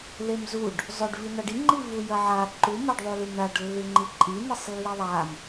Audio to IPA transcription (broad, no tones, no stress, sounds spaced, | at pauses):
l e m z u ɖ | zˤ ɵ ɖ v i n̪ a ɖ i ŋ͡ǃ i v u j ɐ ʕ a ǃ u m a ɖ ðˤ u l ʉ m ɳ a ɖ lː ʉ ŋ͡ǃ i ǃʼ i n̪ i sˤ lː i ðˤ a m